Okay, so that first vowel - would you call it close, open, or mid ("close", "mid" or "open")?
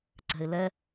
mid